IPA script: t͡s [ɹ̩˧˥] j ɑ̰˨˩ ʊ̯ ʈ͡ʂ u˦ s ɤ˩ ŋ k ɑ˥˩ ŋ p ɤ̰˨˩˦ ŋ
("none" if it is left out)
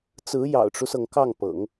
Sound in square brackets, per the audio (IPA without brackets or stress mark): ɹ̩˧˥